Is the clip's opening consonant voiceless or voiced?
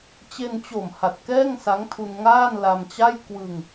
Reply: voiceless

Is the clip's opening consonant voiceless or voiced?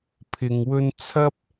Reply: voiceless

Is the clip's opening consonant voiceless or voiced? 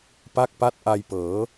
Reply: voiceless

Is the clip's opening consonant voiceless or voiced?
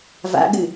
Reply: voiced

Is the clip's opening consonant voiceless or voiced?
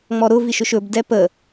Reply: voiced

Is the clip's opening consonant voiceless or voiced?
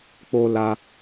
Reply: voiceless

